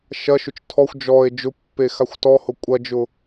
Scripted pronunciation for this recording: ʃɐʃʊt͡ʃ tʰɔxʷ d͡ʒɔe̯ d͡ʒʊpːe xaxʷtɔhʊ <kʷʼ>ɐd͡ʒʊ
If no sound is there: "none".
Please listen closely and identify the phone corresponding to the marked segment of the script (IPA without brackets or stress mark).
kʷʼ